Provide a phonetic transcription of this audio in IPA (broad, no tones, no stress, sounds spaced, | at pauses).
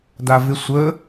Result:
d a v ɪ sʷ ə